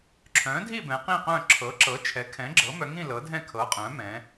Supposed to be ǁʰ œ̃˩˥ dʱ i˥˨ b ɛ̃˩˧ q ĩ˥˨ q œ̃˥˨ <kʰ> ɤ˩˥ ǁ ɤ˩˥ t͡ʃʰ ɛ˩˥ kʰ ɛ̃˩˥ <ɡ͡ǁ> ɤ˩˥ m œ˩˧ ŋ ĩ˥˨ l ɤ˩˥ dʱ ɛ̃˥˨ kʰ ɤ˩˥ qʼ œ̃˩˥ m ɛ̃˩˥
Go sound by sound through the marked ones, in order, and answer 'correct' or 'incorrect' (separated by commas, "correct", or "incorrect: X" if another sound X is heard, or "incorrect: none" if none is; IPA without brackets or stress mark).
incorrect: ǁʰ, correct